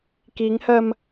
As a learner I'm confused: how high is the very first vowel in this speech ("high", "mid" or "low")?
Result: high